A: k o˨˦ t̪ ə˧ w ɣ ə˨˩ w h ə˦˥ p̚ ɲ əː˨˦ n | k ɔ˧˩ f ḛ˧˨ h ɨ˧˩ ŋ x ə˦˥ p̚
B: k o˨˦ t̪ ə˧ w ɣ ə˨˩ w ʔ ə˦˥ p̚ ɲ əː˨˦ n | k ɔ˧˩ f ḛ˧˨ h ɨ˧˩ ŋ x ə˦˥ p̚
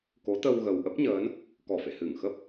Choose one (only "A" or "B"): B